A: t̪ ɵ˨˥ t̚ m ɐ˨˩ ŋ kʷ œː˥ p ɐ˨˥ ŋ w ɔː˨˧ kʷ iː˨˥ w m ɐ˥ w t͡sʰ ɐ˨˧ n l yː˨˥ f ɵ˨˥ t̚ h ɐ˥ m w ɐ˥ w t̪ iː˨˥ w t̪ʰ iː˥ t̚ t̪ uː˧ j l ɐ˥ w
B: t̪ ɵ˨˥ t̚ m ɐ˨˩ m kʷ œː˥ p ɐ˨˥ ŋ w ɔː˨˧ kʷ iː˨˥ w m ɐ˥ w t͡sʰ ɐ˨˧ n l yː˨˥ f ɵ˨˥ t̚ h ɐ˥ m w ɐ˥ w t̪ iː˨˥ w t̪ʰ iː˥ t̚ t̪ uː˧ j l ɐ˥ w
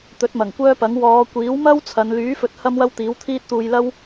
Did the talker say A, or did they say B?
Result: A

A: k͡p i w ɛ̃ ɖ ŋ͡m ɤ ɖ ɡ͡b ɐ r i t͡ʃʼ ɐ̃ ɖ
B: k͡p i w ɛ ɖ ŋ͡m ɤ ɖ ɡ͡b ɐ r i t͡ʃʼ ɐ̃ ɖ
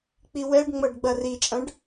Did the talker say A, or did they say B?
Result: B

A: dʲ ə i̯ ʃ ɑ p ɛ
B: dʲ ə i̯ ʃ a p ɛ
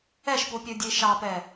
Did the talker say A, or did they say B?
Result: A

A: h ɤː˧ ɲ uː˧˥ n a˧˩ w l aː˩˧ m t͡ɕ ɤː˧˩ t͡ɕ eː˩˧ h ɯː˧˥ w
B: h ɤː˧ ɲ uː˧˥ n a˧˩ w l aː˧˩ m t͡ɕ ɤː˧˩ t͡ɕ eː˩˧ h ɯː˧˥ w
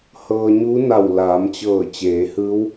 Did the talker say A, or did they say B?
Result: A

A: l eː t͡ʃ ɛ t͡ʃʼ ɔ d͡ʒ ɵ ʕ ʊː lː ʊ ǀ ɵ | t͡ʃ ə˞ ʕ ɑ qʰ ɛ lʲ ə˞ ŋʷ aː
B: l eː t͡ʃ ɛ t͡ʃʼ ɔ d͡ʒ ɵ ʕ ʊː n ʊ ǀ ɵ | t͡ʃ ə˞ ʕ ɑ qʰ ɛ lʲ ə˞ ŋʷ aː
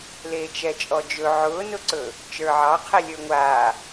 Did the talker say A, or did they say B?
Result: B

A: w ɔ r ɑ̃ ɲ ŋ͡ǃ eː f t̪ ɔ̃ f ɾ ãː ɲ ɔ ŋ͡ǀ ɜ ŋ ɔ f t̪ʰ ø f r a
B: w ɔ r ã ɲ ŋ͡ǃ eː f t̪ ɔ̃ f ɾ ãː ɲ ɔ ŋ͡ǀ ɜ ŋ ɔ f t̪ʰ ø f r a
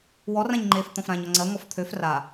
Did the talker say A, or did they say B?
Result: B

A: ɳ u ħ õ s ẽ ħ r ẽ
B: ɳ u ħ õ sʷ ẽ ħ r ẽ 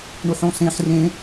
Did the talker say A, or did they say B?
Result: A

